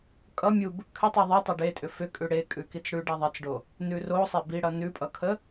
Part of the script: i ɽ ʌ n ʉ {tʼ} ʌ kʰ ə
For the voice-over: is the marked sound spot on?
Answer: no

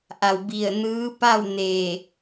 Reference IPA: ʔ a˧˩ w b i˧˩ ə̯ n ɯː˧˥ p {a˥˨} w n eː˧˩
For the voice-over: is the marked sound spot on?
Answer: yes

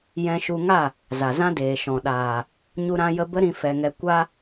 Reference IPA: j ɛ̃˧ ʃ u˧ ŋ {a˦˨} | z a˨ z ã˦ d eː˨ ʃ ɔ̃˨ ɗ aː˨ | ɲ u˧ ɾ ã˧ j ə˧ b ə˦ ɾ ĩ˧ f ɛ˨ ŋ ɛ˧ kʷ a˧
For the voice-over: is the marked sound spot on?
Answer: yes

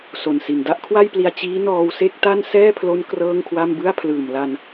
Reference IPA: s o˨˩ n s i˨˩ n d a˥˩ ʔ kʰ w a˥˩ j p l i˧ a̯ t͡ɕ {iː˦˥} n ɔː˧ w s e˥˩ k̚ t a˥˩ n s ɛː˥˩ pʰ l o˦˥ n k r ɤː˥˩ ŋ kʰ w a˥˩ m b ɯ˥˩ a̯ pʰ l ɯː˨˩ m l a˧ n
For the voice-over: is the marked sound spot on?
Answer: yes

